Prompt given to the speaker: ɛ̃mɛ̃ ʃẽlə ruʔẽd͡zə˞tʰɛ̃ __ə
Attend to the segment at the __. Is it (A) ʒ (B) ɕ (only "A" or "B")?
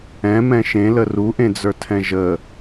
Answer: A